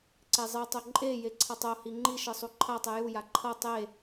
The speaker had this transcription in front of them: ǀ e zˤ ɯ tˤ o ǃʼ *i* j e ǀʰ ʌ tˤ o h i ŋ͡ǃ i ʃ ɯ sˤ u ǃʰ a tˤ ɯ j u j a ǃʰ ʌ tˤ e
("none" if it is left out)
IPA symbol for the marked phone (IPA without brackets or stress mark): e